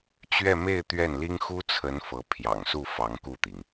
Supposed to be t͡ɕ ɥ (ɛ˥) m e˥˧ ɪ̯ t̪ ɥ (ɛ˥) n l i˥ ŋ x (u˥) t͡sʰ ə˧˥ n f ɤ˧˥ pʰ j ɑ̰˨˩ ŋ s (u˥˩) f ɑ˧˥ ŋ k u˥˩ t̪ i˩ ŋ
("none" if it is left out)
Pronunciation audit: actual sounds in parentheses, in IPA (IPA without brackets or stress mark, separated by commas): ɛ˥˧, ɛ˥˩, u˥, u˥˩